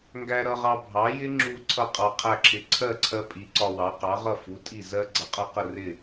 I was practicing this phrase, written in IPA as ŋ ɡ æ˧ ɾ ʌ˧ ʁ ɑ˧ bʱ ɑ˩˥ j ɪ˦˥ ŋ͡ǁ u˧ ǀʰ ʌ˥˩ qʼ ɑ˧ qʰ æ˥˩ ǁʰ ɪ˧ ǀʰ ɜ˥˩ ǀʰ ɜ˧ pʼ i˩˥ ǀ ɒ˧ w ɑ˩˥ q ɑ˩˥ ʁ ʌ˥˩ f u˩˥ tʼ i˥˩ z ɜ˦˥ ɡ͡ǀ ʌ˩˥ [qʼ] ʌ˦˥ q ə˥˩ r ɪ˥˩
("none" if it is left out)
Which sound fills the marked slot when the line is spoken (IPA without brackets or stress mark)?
qʼ